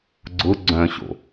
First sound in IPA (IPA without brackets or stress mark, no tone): ɡ͡ǀ